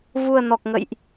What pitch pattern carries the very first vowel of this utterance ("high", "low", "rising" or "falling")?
low